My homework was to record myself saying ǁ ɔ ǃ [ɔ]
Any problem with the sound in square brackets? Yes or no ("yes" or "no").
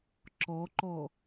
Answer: no